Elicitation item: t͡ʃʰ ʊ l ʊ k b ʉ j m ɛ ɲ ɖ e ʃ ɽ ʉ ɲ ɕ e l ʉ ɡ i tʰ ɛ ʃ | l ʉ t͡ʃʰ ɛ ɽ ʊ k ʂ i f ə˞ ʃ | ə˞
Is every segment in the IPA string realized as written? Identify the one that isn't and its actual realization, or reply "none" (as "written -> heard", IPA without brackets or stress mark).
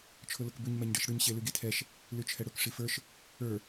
j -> ɲ